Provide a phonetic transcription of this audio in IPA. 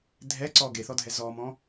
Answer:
dʱɛǀɔ ɡeθɔdʱɛ zɔmɔ̃

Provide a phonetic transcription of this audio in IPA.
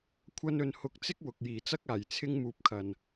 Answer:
kʷʰɐ˧nɵ˨n hʊ˨˥k̚t͡sɪ˥k̚ wʊ˨k̚jiː˨˩t͡sɐ˥k̚ aː˨˩j t͡sʰɪ˥ŋmuː˨p̚kʰɐ˨˩n

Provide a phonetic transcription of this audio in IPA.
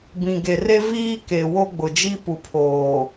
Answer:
bĩ˨ɡe˨re˦ viː˦ ke˨wo˦ɡ͡bʊ˨ d͡ʒi˦pu˨ pʰoː˨

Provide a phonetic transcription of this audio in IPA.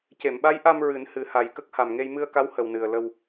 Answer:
ce˨˩˨mɓa˧˥jʔa˧m ɹɨ˨˩˦nhɨ˨˩˦ha˨˩j kə˦˥k̚ha˨˩mŋe˧j mɨ˧ə̯ka˧˥w hə˨˩wnɨ˨˩ə̯lə˧w

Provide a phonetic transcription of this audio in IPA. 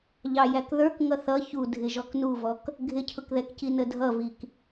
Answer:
ʎɑjækðə˞k ŋʌθʌ çu dʱɪʒɔknuvɔk | ɡʱɪcʰʊkðɛkci nədʱʌvik

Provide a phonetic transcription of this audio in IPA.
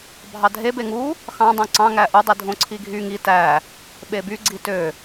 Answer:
bʱɑdʱe beŋu | xɑ̃ dˤõǀɑ̃ ŋæʔu dˤidʱõǀʰiɡʱy ŋi tæ | ɓeby ɡ͡ǀitø

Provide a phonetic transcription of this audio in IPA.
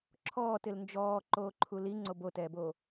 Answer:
ǁʰɔːtɪl nd͡ʒɔːǃoːǃʰu liŋ͡ǀob otɛːbo

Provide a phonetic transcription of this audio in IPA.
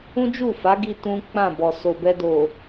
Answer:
ũ˦d͡ʒu˦˨fa˨˦ɡi˧ tũ˦k͡pã˦˨bɔ˨ so˨bɛ˧do˨

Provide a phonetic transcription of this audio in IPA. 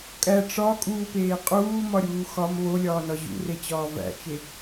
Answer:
kʼæ ʈ͡ʂɒkʼuːpeː qʼuːmɒɾʲuː xɒm βolʲɒːnɒ ʑṵret͡ɕɒː væ̰t͡ʃe

